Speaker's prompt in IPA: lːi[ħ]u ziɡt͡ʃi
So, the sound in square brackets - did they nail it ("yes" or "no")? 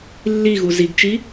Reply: no